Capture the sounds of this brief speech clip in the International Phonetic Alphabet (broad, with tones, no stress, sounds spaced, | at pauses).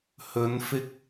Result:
h ɵ˨˧ n f ɪ˧ k̚